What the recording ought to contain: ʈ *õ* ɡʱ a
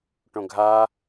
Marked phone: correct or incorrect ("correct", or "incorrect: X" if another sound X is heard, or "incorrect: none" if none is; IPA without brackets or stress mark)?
correct